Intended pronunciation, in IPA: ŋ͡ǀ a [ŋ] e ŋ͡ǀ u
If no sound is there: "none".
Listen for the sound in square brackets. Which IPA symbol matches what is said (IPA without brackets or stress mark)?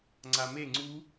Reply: m